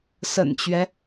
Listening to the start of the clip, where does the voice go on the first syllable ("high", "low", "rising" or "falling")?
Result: low